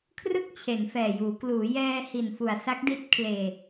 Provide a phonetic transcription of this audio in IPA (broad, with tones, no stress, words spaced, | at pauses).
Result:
kʰrɯ˥˩k̚t͡ɕʰe˩˦nfɛː˨˩juː˩˦ kluː˩˦jɛː˧hi˨˩n fu˨˩a̯sa˦˥k̚di˦˥t̚kʰleː˧